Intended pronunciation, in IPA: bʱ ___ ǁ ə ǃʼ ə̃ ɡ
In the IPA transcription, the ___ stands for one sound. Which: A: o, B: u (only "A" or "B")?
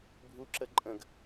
B